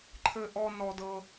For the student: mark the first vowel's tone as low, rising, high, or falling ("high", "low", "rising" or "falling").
high